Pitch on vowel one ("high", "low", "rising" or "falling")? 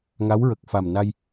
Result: rising